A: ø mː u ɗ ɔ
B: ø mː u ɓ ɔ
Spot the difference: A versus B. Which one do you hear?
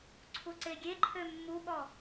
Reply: B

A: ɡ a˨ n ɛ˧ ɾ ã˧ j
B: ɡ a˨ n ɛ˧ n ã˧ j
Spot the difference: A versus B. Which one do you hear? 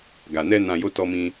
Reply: B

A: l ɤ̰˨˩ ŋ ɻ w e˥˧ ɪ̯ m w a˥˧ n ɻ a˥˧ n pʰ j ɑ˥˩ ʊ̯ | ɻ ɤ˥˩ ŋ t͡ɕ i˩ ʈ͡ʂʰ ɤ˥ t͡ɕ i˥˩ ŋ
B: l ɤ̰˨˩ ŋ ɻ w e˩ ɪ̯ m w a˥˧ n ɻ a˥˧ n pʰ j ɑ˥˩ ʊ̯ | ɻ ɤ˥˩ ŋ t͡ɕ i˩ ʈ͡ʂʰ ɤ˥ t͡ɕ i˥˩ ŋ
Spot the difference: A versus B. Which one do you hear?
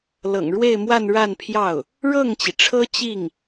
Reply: A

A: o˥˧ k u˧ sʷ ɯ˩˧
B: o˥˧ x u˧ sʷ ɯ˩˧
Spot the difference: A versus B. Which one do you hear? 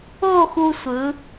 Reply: B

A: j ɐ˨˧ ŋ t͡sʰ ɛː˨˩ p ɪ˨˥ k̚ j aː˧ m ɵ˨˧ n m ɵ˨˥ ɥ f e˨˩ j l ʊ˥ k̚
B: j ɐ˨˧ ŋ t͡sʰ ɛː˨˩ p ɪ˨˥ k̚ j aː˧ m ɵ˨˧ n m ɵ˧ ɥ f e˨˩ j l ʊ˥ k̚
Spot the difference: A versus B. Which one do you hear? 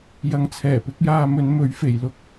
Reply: A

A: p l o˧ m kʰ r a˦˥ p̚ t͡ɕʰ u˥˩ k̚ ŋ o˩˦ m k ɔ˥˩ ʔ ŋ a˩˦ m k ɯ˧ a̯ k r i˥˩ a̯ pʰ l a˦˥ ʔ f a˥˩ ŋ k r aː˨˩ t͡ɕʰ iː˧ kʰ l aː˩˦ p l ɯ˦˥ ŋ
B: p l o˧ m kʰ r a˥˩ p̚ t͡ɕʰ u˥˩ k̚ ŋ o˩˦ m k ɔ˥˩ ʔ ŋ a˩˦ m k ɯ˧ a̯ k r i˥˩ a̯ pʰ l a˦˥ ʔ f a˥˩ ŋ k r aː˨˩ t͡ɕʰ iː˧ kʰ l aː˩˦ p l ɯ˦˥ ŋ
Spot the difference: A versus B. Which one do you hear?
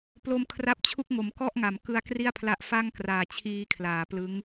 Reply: A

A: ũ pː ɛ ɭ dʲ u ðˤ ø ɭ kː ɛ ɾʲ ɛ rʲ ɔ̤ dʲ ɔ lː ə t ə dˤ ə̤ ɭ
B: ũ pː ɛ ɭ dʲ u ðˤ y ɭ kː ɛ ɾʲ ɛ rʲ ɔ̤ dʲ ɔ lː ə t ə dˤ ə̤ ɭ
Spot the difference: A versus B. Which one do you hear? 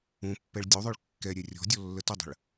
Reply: A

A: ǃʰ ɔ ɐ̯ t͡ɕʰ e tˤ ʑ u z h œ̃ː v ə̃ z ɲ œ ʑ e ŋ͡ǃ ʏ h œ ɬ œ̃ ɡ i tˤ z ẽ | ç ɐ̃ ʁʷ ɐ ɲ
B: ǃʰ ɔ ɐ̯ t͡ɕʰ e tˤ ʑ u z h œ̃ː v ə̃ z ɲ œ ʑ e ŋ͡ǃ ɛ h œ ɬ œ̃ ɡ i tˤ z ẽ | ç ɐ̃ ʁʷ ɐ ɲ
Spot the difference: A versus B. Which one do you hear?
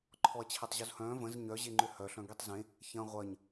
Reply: A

